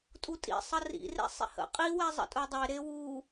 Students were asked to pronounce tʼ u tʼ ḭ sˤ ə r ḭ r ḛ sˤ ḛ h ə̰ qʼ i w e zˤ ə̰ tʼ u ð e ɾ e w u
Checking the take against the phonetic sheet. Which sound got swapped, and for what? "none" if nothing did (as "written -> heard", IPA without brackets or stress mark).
ð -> dˤ